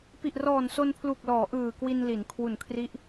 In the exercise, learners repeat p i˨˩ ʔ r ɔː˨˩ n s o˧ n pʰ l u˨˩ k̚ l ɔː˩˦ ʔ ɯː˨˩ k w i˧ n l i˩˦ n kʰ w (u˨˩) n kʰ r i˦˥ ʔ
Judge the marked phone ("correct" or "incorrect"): correct